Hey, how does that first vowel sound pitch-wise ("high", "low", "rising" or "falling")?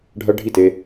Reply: high